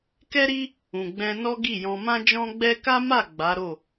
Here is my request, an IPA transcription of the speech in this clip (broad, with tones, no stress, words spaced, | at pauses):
kɛ˦ɾi˦ | ũ˨ɡ͡bɛ̃˧nɔ˦ ɡi˦˨jɔ̃˧ mã˦d͡ʒɔ̃˦ ɡ͡bɛ˦ ka˦ma˦˨ ɡ͡ba˨˦ɾo˦˨